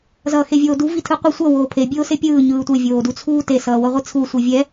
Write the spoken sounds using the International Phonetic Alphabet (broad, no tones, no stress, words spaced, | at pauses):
zʌːxevʲoːdu vitʰɯqʷʌ sʷʌ woːpʰe bʲoːsepʲɯː ɲɯːtʷe vʲoːdut͡sʰuːte sʌːwʌʁʷit͡sʰu sʷivʲɛ